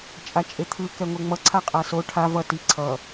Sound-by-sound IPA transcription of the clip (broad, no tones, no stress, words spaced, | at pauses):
t͡ʃʼat͡ʃʼet̪ʰɯ kɛŋʷeŋ͡mʌ ǀʰaqʼaso ʈʰa vʌ ti ǀʰʌ